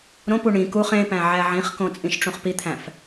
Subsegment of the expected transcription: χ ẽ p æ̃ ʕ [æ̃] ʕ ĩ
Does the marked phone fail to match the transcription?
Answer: yes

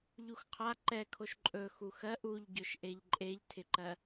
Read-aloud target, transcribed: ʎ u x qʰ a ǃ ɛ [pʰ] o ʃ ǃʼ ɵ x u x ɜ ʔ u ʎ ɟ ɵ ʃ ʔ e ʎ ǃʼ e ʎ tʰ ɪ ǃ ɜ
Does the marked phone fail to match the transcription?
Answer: yes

